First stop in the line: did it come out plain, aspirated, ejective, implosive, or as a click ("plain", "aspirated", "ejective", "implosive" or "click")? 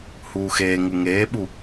implosive